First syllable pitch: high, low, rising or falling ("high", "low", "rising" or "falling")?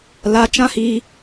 rising